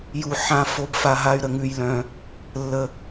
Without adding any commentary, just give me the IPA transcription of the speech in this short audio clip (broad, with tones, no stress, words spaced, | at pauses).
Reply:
ju˨ ħã˨ fo˦bfa˧ɦa˦y̯ ɾə˨ŋʉ˧jlœ̃˧ | lːə˧